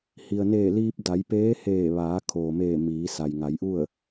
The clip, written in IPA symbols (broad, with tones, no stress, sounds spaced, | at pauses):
h i˩ ə̯ n eː˧˩ l iː˧ p̚ d a˩˧ j p eː˧˥ h eː˧˩ ʋ aː˩˧ kʰ oː˩ m eː˧˩ m iː˩˧ s a˩ j ŋ a˩˧ j ʔ u˥˨ ə̯